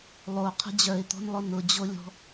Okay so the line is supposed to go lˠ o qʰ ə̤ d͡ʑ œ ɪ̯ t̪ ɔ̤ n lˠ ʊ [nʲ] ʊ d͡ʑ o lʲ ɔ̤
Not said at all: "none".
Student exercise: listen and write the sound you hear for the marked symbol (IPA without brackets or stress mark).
n